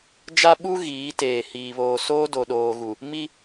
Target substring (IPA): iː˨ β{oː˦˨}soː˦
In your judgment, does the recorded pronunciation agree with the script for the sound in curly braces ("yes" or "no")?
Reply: no